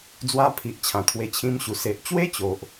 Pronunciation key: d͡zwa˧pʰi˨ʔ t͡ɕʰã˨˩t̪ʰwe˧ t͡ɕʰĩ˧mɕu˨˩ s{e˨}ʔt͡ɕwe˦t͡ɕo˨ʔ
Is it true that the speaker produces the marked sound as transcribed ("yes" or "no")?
yes